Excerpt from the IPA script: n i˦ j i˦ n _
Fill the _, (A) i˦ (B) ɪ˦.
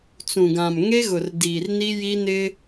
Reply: B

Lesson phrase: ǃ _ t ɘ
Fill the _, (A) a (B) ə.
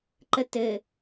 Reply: B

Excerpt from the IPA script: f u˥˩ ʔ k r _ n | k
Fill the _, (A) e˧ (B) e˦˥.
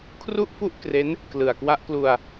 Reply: B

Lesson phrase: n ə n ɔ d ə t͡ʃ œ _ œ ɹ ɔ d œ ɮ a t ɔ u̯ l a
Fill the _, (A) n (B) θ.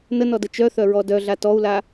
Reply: B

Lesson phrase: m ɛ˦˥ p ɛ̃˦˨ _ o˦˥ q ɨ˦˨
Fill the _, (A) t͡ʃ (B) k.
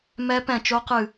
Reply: A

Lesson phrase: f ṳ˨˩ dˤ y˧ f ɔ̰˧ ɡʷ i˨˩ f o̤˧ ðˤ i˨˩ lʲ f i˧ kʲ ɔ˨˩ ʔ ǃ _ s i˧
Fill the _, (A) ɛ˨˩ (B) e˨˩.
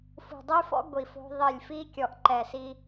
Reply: A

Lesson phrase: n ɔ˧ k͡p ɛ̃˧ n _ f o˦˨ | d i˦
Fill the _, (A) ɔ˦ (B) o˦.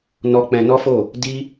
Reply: A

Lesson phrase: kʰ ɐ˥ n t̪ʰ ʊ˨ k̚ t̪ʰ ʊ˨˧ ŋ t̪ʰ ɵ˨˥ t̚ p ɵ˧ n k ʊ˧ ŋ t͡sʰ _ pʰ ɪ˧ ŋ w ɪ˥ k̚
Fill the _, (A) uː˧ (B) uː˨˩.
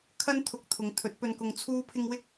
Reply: A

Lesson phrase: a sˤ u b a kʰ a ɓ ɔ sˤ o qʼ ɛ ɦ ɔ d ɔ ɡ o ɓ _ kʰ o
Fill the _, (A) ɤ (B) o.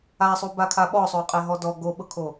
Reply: A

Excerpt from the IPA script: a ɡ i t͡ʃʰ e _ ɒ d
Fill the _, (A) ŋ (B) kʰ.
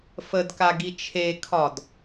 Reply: B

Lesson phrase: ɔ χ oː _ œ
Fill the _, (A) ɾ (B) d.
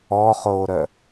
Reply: A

